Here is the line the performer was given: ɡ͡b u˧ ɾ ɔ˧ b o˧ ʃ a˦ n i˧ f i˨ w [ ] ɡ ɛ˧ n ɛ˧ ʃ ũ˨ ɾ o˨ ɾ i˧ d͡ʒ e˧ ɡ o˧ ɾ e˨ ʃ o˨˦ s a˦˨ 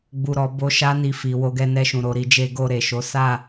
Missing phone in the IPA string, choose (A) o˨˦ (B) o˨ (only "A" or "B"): A